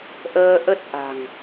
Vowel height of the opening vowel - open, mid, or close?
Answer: mid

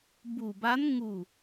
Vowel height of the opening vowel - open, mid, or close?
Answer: close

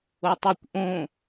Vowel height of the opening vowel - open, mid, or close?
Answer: mid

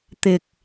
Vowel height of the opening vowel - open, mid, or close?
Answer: close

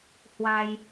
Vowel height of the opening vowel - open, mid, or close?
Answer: open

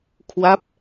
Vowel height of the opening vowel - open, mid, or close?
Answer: open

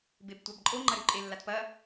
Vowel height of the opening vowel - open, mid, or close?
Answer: mid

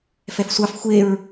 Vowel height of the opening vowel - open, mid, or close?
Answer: mid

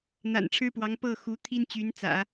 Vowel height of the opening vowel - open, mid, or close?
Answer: open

